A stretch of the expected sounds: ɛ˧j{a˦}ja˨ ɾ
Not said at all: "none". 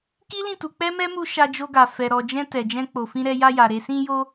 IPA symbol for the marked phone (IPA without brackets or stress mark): a˧